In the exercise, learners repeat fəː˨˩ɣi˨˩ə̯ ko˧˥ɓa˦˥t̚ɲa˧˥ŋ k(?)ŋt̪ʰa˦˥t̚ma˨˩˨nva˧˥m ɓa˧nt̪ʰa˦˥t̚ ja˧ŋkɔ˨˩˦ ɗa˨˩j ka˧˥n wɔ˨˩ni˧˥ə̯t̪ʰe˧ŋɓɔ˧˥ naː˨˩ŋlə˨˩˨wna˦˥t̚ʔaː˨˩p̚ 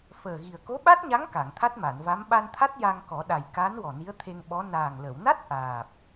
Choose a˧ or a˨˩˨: a˨˩˨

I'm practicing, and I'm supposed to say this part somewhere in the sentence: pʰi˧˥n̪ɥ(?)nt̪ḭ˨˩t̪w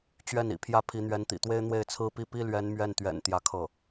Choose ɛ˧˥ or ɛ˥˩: ɛ˧˥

